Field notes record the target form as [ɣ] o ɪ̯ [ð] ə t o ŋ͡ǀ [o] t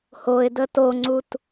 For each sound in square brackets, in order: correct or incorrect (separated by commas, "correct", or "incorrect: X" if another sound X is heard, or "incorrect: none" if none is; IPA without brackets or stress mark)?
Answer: incorrect: h, incorrect: d, incorrect: u